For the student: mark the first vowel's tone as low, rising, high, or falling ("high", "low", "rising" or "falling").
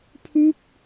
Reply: falling